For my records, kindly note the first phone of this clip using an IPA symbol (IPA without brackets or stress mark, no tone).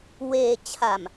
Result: w